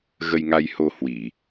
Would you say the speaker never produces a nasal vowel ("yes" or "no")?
yes